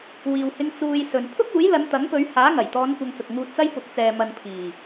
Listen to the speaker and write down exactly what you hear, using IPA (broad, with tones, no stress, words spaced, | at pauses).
wiː˨whɪ˧ŋ t͡suː˧jsɵ˨n pʰʊ˥k̚ uː˨˥jlɐ˨˧nt̪ɐ˨˥ŋpɵ˨˧ɥ haː˨˥ŋɐ˨˩jt̪ɔː˨˧n kʷɐ˧ŋt͡sʊ˨k̚ŋuː˧t̚t͡sɐ˥j pʊ˨˥k̚t͡sɛː˨mɐ˨n pʰiː˨˩